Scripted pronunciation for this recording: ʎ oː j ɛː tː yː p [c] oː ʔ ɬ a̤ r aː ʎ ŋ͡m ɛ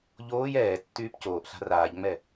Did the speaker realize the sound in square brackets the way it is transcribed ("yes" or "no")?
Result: yes